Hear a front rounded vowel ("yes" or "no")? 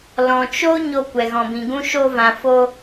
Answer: no